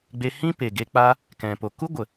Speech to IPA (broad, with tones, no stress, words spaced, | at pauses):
ɡ͡be˧hĩ˦pe˨ ɡe˧k͡pa˦ | kɛ̃˨po˨ku˦ɡʷə˨